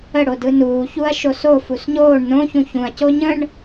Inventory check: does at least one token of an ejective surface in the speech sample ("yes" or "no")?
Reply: no